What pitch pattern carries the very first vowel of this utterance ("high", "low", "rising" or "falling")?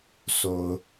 low